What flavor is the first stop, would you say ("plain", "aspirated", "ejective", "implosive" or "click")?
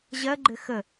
click